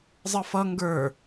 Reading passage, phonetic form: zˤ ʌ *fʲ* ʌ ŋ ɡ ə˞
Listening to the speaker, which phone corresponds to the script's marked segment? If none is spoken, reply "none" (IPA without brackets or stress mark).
f